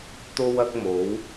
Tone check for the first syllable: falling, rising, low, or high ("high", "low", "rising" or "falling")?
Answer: high